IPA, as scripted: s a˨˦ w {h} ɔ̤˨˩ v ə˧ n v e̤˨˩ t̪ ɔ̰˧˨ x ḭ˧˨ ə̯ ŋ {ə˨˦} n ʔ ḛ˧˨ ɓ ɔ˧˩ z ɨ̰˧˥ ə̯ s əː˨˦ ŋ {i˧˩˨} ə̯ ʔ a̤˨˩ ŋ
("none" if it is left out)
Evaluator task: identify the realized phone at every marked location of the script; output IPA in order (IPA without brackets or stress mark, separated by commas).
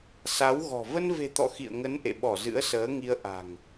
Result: ɣ, ə˨˦, i˧